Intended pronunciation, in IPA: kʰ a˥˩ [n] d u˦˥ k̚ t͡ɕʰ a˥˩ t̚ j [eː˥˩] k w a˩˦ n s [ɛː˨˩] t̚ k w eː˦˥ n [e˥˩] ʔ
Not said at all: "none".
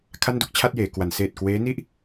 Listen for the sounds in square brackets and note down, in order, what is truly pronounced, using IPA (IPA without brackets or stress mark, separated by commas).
n, eː˩˦, eː˨˩, i˥˩